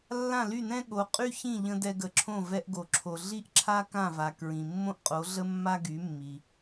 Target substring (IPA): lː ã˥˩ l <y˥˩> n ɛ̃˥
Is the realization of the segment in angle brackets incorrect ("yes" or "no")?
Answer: no